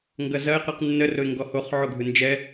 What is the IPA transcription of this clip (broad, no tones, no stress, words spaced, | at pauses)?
ŋɡɐzɐɪ̯ qɯqnːə rʊɪ̯ŋɡɔhoχ ʕoɡʱɯnd͡ʒɛ